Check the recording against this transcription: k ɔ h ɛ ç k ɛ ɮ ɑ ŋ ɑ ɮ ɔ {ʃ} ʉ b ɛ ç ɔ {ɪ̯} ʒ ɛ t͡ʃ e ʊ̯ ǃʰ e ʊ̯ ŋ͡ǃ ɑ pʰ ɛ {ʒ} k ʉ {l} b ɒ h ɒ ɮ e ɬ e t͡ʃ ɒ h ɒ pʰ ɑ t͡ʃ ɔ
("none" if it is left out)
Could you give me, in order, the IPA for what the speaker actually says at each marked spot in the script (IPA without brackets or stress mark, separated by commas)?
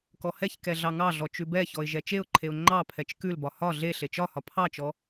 t͡ʃ, ɪ̯, t͡ʃ, l